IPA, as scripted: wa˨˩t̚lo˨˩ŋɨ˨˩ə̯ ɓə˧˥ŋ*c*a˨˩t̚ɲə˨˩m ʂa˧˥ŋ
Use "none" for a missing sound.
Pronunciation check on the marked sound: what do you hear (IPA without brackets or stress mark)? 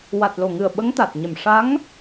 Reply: t̪